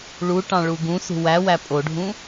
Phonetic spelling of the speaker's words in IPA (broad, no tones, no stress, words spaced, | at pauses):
ɭuʈɑ̃ ɭuɡũsṳ wæwæ pʼoɖʱũ